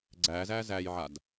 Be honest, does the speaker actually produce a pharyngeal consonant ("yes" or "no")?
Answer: yes